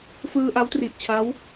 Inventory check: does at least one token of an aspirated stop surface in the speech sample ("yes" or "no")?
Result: yes